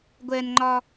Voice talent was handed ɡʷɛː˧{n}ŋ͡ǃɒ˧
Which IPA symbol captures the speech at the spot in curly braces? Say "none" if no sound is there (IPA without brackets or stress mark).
n